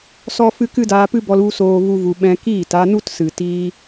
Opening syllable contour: high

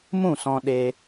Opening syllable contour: falling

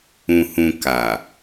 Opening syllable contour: low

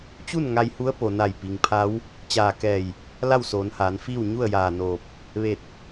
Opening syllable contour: falling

